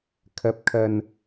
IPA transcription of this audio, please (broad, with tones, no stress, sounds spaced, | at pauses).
kʰ ɐ˨˥ p̚ kʰ ɐ˨ n